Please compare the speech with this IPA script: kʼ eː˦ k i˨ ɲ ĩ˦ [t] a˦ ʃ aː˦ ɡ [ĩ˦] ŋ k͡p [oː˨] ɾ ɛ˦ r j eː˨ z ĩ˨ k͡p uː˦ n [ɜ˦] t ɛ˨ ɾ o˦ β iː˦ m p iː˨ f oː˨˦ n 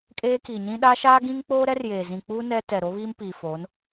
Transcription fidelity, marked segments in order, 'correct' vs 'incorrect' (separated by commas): incorrect, correct, incorrect, incorrect